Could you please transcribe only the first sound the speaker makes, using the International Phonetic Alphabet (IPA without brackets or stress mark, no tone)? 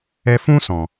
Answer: ɛ